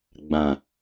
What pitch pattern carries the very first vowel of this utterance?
low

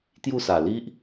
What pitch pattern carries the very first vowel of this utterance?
falling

